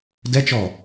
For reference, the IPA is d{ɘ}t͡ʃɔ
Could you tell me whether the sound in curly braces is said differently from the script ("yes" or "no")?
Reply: yes